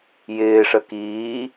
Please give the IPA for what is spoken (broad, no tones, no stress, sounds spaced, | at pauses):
j ɪː ʂ ə k iː